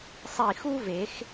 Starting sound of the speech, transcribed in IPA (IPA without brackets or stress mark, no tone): sˤ